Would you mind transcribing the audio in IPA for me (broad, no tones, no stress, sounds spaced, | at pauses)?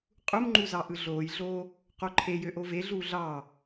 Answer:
qʼ u m ŋ͡ǃ u z ɑ ʔ ɯ ɮ oː j ɮ oː | q o ǃʰ e j ø ʔ o v e ɮ uː ɮ ɑ